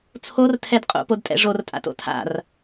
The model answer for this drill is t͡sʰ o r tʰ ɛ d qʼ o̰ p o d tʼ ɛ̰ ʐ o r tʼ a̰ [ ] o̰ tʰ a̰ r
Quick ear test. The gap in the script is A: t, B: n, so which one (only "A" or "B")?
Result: A